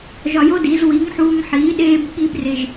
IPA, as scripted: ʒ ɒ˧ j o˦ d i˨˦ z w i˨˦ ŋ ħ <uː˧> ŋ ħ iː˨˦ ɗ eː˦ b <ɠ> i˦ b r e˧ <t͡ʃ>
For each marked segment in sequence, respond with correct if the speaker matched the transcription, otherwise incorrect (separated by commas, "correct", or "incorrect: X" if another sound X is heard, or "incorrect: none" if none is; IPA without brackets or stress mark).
correct, correct, incorrect: ʒ